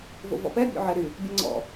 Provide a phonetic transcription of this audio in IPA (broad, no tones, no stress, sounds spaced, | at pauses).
v o̰ v ɔ̰ p ɛ bʲ o̰ ʕ ɛ ɾ y | bʲ ɛ ŋ͡ǀ ɔ̰